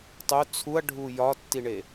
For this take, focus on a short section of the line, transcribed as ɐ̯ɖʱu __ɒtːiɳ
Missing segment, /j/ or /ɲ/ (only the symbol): j